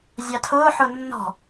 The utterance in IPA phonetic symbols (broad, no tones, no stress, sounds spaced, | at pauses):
zʲ ɑ tʰ ʊː ħ ʊ nː ɔ̤